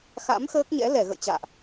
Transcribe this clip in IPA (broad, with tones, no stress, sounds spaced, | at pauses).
x a̰˧˥ m x əː˦˥ k̚ ɲ ɛ̰˧˥ l ɛ˧˩ ɣ ə̰˧˨ j t͡ɕ a̰ː˧˨ ʔ